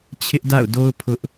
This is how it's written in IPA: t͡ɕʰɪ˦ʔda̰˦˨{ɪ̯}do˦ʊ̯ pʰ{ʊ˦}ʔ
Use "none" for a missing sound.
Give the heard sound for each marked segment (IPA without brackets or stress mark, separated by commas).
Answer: ʊ̯, ʊ˦